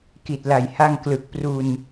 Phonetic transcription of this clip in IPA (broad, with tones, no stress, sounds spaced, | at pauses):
k i˨˩ t̚ l a˨˩ j h a˧ ŋ k l ɯ˨˩ k̚ p r u˧ n